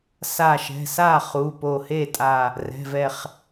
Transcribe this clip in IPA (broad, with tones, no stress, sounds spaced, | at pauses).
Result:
s a˧˩ ʃ ɛ̤˩˧˩ s a˥˩ χ u˩˧˩ p o˧˩ h e˥˩ tʼ a˧˩ | r ɛ̤˩˧˩ v ɛ˧˩ χ